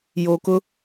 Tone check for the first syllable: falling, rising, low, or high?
low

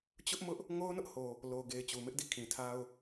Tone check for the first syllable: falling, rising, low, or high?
high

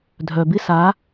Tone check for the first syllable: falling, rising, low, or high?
low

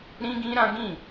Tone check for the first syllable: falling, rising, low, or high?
high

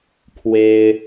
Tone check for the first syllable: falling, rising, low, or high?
high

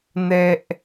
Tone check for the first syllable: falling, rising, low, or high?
high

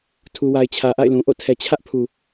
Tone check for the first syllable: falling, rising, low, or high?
low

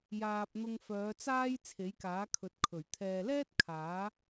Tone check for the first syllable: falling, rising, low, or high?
low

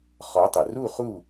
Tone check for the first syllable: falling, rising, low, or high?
rising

